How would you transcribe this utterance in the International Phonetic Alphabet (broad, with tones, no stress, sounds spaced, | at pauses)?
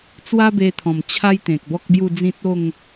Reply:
t͡s w a˦ b e˧ t̪ʰ ɔ̃˨˩ m t͡ɕʰ a˦ j t̪ ẽ˨ k̚ b ɔ˦ k̚ b j u˥˧ d͡z ĩ˦ t̚ o˥˧ ŋ